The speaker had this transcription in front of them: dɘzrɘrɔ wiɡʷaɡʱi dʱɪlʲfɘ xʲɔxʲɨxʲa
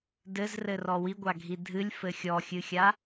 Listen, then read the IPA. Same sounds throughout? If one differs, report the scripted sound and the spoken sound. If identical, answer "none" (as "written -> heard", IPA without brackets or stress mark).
ɪ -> ɨ